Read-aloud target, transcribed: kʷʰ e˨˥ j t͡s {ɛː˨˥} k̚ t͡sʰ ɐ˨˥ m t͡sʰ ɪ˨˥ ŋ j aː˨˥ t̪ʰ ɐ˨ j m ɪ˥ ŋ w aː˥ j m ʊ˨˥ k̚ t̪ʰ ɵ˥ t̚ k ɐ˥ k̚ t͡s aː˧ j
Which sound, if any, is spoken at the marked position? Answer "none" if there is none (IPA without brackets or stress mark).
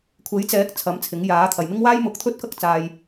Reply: ɛː˨˥